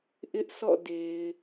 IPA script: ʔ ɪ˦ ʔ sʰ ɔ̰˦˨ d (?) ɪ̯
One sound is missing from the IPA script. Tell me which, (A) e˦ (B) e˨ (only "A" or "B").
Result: B